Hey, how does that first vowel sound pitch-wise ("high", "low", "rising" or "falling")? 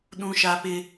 high